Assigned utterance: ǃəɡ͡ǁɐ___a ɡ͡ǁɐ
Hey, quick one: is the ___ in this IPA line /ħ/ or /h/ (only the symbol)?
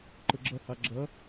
h